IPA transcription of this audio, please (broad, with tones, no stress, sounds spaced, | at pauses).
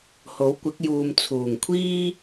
h o˨˥ w kʷ ɪ˨˥ k̚ j uː˨ m t͡sʰ uː˨˩ ŋ kʷʰ iː˥